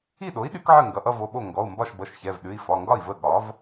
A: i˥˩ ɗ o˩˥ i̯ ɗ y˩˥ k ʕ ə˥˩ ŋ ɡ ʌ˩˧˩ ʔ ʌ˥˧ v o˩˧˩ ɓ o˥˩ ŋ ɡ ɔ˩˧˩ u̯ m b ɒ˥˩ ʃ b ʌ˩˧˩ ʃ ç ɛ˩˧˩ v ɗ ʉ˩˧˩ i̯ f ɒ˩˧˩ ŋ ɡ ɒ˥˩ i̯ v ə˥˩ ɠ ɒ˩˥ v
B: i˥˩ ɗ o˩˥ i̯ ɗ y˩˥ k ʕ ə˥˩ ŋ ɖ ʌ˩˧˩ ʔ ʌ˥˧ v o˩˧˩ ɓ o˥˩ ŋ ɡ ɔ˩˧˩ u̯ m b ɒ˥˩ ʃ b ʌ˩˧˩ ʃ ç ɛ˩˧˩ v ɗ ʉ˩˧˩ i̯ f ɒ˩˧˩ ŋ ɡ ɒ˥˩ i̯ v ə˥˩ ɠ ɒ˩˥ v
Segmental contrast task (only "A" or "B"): A